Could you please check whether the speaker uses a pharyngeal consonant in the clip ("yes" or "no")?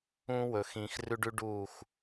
no